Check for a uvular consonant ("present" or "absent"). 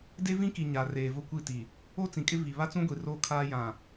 absent